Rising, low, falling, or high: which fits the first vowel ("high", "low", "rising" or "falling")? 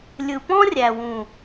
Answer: low